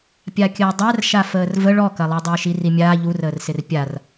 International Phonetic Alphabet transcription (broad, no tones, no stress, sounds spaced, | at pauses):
pʲ a kʲ əː dˤ æ r ʃ a f əː r v ə ɭ ɔ k ɐ lˠ i dˤ ɪː ʃ i r i mʲ aː ʎ u r əː r s ɪ r pʲ a r